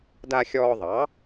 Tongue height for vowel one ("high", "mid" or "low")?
low